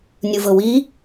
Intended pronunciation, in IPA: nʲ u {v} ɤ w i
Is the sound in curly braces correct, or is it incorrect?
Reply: correct